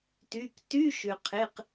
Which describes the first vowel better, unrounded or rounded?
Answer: rounded